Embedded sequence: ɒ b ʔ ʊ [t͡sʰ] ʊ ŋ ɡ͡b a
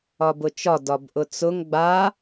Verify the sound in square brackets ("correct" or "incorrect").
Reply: incorrect